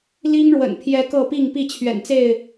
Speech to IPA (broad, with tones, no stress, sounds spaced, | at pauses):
l i˦ ŋ ɻ w ə̰˨˩ n pʰ j ɛ˦ k ɤ˥˨ p i˥˨ ŋ p i˥˨ t͡ɕʰ ɥ ɛ̰˨˩ n t͡s e˥˨ ɪ̯